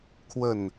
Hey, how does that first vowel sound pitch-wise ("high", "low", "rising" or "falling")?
falling